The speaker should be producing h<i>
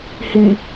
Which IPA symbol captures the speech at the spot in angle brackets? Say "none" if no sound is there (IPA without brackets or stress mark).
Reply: i